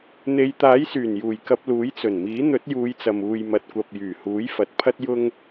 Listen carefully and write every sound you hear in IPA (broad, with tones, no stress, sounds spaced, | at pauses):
n̪ e˧ j t̪ aː˨˥ j s yː˨˩ n j uː˨˩ j k ɐ˧ p̚ l uː˨˥ j t͡s ɵ˨˩ n m iː˨˥ n̪ ɵ˨˥ t̚ j uː˨˧ j t͡s ɐ˨ m uː˨ j m ɐ˨ t̚ kʷ ɐ˨ p̚ j yː˨˩ h uː˨˥ j f ɐ˨ t̚ pʰ ɐ˥ t̚ j ʊ˥ ŋ